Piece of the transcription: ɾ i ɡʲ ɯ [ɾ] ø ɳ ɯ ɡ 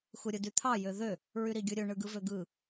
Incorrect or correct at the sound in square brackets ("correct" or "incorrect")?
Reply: incorrect